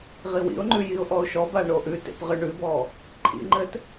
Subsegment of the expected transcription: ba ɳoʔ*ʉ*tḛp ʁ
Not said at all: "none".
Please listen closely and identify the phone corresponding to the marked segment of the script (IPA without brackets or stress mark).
ʉ